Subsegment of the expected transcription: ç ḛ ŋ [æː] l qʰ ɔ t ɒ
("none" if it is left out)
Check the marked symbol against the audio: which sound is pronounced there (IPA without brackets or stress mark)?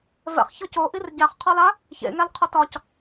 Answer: æ